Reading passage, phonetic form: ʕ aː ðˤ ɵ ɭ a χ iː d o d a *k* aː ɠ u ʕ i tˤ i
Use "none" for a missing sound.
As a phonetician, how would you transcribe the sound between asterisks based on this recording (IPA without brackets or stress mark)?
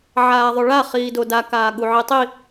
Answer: k